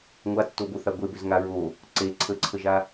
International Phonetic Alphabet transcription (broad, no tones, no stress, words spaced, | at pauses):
ŋʷatːoboθa ɡʷebøzŋa ɹo | ǀe ǀʰəǀʰəʒa